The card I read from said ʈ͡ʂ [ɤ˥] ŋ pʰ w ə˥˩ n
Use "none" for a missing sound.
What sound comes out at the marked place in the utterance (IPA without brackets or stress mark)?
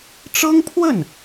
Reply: ɤ˥